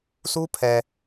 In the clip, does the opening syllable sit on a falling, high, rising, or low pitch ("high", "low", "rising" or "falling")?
high